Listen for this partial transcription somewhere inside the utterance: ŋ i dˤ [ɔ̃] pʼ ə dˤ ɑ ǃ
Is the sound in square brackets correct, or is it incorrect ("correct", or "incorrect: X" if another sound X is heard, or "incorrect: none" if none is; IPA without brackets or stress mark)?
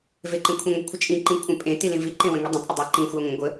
incorrect: ə̃